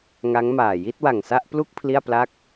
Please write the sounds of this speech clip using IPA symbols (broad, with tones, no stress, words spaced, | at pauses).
ŋa˦˥ŋmaː˨˩ ji˥˩t̚wa˨˩ŋsa˥˩ʔplu˥˩k̚ pʰli˥˩a̯pla˥˩k̚